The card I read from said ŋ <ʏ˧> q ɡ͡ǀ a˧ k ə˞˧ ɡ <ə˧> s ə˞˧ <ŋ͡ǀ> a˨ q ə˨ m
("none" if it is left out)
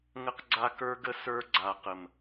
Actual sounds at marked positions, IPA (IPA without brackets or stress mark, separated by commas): ə˧, ə˧, ɡ͡ǀ